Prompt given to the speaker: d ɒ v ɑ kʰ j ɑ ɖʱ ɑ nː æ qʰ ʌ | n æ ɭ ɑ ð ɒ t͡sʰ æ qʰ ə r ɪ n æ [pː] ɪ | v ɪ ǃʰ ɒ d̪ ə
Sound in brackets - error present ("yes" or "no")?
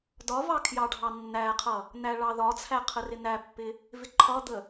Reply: no